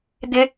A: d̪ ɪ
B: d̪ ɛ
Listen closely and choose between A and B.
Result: A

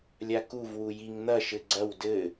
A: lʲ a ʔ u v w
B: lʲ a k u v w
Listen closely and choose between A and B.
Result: B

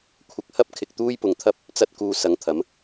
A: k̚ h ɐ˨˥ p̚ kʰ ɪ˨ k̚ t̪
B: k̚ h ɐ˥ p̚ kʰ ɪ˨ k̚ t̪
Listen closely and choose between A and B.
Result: B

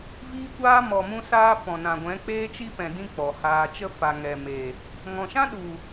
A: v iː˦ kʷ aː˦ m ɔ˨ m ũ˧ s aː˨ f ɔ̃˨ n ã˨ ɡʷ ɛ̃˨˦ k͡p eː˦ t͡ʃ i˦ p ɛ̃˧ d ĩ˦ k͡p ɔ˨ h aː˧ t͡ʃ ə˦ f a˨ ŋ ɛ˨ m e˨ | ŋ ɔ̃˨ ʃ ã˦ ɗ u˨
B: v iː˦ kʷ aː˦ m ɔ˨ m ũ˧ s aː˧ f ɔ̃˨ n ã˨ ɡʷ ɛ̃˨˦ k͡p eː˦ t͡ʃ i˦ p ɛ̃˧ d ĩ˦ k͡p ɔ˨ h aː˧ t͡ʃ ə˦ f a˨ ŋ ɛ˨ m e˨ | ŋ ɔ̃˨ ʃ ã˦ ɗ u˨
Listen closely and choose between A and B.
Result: B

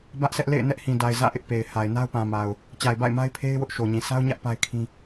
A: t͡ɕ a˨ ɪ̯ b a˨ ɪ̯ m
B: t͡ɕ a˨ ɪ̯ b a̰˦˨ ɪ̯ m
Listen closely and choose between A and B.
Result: B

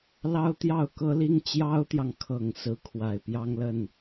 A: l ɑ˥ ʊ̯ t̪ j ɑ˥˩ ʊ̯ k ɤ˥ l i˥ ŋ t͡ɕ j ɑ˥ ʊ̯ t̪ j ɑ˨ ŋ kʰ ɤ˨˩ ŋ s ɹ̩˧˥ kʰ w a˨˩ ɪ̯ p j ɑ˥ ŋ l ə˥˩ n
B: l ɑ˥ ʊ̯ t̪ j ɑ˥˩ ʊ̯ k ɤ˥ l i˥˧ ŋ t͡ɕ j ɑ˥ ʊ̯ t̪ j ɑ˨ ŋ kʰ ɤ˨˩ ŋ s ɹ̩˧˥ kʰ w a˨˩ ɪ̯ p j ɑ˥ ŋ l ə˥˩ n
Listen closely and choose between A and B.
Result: A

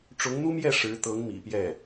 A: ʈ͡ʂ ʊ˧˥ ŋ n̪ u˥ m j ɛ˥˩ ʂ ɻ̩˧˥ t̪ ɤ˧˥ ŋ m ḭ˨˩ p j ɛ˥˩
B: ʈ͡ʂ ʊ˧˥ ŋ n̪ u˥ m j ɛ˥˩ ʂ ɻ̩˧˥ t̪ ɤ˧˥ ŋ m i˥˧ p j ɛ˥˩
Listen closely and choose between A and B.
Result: A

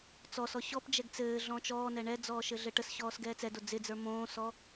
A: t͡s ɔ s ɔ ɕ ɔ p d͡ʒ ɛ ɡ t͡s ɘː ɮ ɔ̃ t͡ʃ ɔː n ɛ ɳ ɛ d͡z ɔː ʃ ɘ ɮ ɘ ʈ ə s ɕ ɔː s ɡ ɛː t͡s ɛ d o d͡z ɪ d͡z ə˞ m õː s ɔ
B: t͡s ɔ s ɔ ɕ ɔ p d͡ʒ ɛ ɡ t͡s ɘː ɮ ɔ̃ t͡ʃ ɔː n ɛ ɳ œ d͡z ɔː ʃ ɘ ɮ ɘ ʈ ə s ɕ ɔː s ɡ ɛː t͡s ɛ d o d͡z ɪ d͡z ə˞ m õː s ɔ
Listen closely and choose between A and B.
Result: A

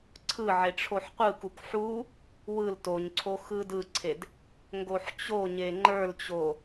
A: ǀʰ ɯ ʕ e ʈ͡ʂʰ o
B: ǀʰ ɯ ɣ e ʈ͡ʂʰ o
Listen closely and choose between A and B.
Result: A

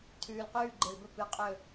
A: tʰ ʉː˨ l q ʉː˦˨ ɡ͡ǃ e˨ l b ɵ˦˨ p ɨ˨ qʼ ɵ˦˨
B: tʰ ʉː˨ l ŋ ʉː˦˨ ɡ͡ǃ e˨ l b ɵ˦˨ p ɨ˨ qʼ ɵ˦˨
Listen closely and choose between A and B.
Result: A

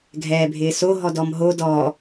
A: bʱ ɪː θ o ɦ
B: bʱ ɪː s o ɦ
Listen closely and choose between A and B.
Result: B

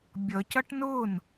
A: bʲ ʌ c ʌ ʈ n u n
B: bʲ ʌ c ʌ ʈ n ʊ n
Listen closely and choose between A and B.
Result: B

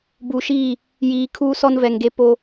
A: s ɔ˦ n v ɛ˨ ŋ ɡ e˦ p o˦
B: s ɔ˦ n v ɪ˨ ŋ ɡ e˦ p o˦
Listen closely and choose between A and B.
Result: A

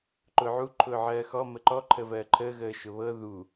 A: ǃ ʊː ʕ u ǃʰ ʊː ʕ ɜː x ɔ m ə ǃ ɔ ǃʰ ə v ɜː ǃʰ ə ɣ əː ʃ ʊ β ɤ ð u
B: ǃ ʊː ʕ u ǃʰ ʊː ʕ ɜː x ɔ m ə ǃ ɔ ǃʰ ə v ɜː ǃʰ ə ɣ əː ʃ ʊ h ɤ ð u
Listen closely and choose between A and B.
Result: A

